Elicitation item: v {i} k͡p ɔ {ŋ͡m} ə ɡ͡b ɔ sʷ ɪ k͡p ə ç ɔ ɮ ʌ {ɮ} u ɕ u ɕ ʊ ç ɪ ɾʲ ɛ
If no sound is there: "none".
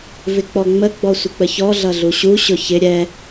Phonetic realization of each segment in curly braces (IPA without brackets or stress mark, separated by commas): ɪ, ŋ͡m, ɮ